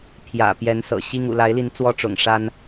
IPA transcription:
pʰ j ä̰˨˩ p j ɛ˨˦ n s ɤ̰˨˩ ɕ i˦ ŋ ṵ˨˩ l a˨˦ ɪ̯ l i˨˦ n t͡s w ɔ˦ ʈ͡ʂ ʊ̰˨˩ ŋ ʂ a˦ n

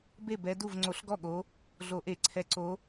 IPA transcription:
b e˥˩ b ɛ˨˦ d u˥˩ v ŋ͡ǀ o˧˩˧ ɬ ɡ ɔ˥˩ ɠ o˨˦ | ɮ o˧˩˧ ʔ e˧˩˧ ǀʰ ɛ˨˦ ǀ o˨˦

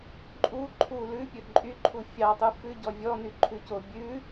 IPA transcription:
ǃʼ u ǃʰ u l ʉ pʲ ɵ ǃʼ y ǃʰ u fʲ ɑ tˤ u f ʉ ɟ ɔ vʲ ɔ n y ǃʰ ʉ c o bʲ ʉ

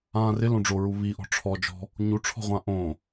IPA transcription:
ãː r ɪ l õ ɖ͡ʐ o ɹ u β i ʔ ɔ̤ ʈ͡ʂʰ ɔ d͡ʒ ɔ̤ | ɲ u ʈ͡ʂʰ ɔ̤ ʁʷ ã ʔ õ

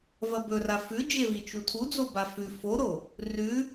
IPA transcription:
v ɐ b ɵ r a f ʉ d͡ʒ e v i t͡ʃ u tʰ u d͡z o b a f ʉ f o ɾ o | r ʉ

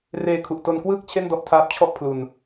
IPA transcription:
r eː˧ kʰ u˨˩ ʔ t o˧ n k w ɯː˥˩ k̚ t͡ɕʰ e˥˩ n d ɔ˥˩ ʔ tʰ aː˦˥ p̚ t͡ɕʰ ɔ˥˩ ʔ pʰ l u˧ n

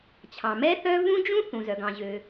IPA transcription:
t͡ɕʰ ɑ̃˩ m ɛ˥ θ œ˥ v ũ˥ d͡ʒ ũ˥ θ ũ˩ z œ˩ ɡ ɑ̃˩ ʑ ø˩

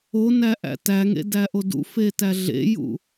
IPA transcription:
o n æ ʔ æ̰ t æ ŋ ḛ d æ ʔ o d ṵ f e t æ ɮ ḛ j ṵ

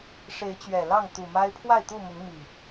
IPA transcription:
ʂ e˨˦ ɪ̯ t͡ɕ ɥ ɛ˨˩ l ɑ˥˨ ŋ t̪ u˨˩ m a˦ ɪ̯ pʰ w a˥˨ ɪ̯ t̪ u˥˨ m ʊ˨˦ ŋ m i˨˩

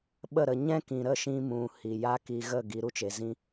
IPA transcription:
ɓ ə˦˨ ɾ ə˧ ɲ ɛ̃˦ k ĩ˨ ɾ ə˦˨ ʃ ĩ˧ m ũ˨ h i˨ j a˦ k i˧ ɣ ə˦˨ ɡ i˨˦ ɾ u˧ t͡ʃ e˨ z ĩ˦

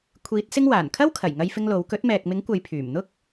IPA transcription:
kʷʰ iː˨˥ t̚ s ɪ˥ ŋ w aː˨˩ n kʰ ɐ˥ w kʰ ɐ˨˩ j ŋ ɐ˥ j f ɪ˥ ŋ l o˨˥ w k ɵ˨˥ t̚ m ɛː˨ k̚ m ɪ˨˥ ŋ kʷ ɐ˨˧ j pʰ yː˨˩ m n̪ ʊ˥ k̚

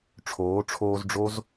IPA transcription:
ʈ͡ʂʰ oː˨˦ ʈ͡ʂʰ oː˧ z ɖ͡ʐ o˦ z

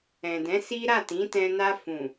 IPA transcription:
ɛ̃˨ d ɛ̃˨˦ s i˦ ɾ a˦˨ t ĩ˨˦ t ɛ̃˧ n a˧ f ũ˨

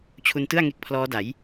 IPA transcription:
t͡ɕʰ u˧ n t ɯ˥˩ a̯ ŋ e˦˥ k̚ pʰ l ɔː˦˥ d a˩˦ j

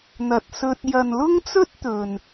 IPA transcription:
n̪ ɐ˨ t̚ s ɵ˧ t̚ j ɐ˨ n l ʊ˥ ŋ t͡s ɵ˥ t̚ t̪ ɵ˨ n

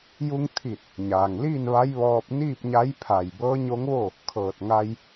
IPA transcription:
j u˧ ŋ t̪ʰ i˧˩ t̚ | ɲ aː˩ ŋ l iː˥˨ n ʋ a˧˥ j ʋ ɔː˧ p̚ n iː˥˨ p̚ ɲ a˧˥ j pʰ a˧˩ j b ɤː˧˥ ɲ o˧˥ ŋ ʋ o˥˨ | kʰ ɤː˧˩ t̚ ŋ a˧ j

